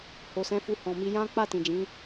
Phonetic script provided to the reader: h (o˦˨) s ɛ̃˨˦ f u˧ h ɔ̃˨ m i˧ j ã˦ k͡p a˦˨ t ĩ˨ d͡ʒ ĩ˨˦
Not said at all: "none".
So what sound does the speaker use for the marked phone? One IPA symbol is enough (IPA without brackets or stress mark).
o˨